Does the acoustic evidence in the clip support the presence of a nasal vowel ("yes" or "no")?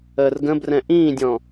yes